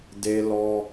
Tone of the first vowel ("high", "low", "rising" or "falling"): high